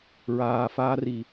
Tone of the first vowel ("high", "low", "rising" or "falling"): high